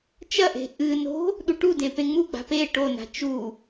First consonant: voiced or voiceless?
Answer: voiceless